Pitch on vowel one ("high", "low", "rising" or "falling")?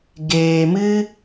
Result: low